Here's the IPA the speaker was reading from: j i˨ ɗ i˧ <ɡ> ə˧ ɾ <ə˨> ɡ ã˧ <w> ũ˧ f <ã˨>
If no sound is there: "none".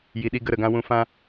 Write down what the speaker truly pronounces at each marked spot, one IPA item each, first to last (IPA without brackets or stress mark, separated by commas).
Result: ɡ, ə˨, w, ã˦